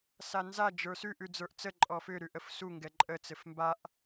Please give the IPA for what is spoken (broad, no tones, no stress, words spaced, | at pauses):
sanza d͡ʒə˞sʉʔ ʉd͡zə˞ʔt͡sə ǃʼɔfʏ ɾʉʔəfsu ŋɡɛǃʼə t͡sɘfmbaʔ